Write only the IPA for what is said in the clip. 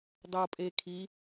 dˤopʼekʰi

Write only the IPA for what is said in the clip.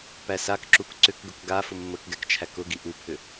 pæsakǁuk ǀʏkɡʊk ɡa fʊmːəkɡɛk t͡ʃʰækʊɡi ʔupʰʏ

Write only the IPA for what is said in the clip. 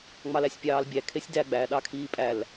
ŋ͡mɑlæsʲpʲɑːlbʲæ kʰesʲdæ ɡ͡bæ ɗɑkʰiːpʼæl

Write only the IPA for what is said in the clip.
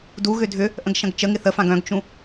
duɣʏ dʱʏ | ʔə̃ɡʃɐ̃ɡt͡ʃəŋɪ θəfãɡ œ̃ɡt͡ʃũ

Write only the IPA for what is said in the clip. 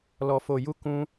lɔ˧fo˧ ju˦kũ˦

